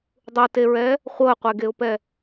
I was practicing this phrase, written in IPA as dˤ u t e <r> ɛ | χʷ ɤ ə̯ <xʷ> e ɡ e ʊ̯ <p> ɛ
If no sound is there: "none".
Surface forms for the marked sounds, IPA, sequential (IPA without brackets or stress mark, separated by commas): ɹ, qʷ, p